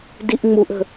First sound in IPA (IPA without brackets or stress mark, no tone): d